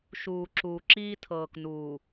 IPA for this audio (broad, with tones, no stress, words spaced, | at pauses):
ʃuː˨ǁuː˨ǁiː˦ tʰɤː˨knuː˨